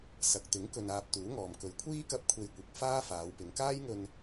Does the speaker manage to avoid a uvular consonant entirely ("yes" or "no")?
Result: yes